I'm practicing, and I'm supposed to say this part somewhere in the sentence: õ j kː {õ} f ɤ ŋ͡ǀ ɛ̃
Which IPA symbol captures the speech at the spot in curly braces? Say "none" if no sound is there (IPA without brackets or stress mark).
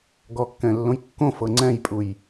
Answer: õ